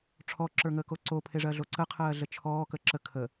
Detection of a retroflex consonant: present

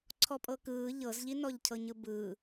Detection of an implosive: absent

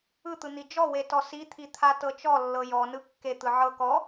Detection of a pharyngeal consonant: present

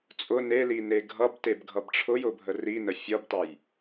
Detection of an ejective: present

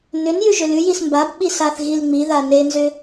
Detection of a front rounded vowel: present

